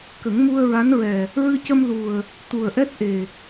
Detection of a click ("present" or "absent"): absent